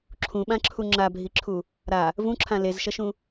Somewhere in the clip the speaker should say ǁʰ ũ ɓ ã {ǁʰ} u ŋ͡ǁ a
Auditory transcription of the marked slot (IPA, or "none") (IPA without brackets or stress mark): ǁʰ